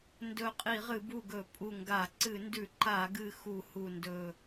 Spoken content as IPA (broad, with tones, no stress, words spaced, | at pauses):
ndɵ˧˩ qʼi˧˩˧ʁɨ˧˩˧bu˧˩ ɡɵ˧˩˧pʼu˧˩ŋɡa˧˩˧ ǀɨ˧˩˧ndʉ˧˩˧ ǃa˧˩˧ɡɨ˧˩ xu˧˩˧hu˧˩ndɵ˧˩